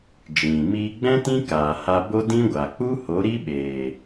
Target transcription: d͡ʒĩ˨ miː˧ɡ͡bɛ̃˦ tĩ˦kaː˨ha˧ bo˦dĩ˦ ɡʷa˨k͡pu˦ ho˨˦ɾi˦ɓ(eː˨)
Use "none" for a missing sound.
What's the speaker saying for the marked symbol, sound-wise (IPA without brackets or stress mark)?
eː˨